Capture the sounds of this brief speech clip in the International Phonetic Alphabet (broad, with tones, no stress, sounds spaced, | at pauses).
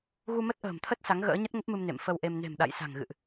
ɣ u˧ m ə˦˥ t̚ ʔ ə̤ː˨˩ m t̪ʰ ə˦˥ t̚ s a˨˦ ŋ ɣ ə̰ː˧˥ ɲ ə˦˥ t̚ ŋ ə˦˥ p̚ m ɨ˧ m n ḛ˧˨ m f ə˧ w ʔ e˧ m n e̤˨˩ m ɗ a̰˧˨ j s a̤˨˩ ŋ ɣ ɨ̰˧˨ ʔ